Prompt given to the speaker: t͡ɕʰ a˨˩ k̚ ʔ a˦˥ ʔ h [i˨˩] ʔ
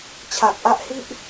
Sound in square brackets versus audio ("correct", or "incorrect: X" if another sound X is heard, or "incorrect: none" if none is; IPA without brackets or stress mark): incorrect: i˥˩